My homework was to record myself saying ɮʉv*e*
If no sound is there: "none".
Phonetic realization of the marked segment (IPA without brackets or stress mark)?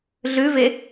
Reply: e